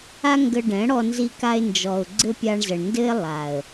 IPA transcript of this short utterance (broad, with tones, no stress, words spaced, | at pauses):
a˦ŋɡə˧ɖɛ̃˨˦ ɽɔ˧nzi˧ka˧ɪ̯ nd͡ʒɔ˨ʊ̯ ɡ͡ǀɘ˦pʲa˧ɳzə˨ɳndɘ˦ɪ̯ lˠa˨ə̯